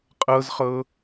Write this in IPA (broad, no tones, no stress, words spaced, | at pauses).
qʼɤzχɤ